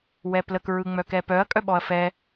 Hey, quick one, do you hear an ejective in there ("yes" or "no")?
yes